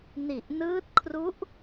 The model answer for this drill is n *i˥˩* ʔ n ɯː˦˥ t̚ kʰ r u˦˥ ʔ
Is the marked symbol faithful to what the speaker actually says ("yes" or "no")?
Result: no